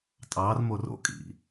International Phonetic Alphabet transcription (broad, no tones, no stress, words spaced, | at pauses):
tʼɑrmor o̰kʼḭ